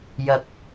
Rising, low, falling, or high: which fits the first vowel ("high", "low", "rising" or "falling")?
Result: rising